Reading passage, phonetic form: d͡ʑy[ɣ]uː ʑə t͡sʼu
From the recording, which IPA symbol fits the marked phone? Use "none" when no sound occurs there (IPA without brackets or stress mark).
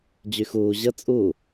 x